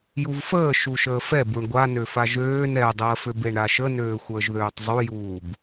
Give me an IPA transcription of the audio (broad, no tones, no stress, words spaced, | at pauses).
juvfəː ʃuʃəːfɛb uɳɡʷanøfa ʒøːn ɛdˤəːføb eɳɾaʃənøː xʷəːʒðøːtˤzˤujuːb